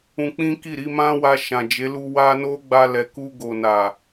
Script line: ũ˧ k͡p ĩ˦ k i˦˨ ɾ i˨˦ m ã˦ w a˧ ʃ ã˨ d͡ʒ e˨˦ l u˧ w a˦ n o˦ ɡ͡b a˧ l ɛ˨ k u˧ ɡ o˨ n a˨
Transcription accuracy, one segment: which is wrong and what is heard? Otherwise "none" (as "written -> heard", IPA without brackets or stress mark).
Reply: none